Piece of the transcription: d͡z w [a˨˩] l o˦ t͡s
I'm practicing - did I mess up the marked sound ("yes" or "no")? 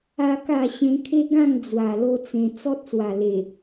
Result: no